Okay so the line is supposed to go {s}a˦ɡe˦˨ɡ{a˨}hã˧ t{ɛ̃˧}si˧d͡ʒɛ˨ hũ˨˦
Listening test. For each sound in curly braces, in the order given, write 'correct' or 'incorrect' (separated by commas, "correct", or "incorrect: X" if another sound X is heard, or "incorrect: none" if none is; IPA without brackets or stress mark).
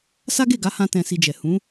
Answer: correct, incorrect: a˨˦, correct